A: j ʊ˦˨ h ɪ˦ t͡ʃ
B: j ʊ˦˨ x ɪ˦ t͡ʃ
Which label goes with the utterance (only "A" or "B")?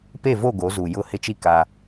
A